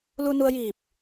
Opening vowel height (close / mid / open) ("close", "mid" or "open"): close